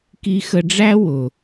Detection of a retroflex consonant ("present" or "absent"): present